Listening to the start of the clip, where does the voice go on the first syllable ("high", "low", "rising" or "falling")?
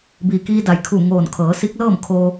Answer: low